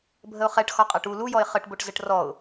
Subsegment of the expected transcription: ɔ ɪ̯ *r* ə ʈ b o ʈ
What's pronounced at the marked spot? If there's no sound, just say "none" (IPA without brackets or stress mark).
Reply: χ